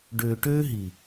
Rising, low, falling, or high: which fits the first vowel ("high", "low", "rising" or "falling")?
low